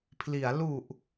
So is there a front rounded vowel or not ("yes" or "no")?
no